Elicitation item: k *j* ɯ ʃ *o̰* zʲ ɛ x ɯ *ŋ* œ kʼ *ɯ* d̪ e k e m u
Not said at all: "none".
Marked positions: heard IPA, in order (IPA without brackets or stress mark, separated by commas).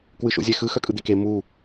w, o̰, x, ɯ